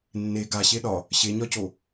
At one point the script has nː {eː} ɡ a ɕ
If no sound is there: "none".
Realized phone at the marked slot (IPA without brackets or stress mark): e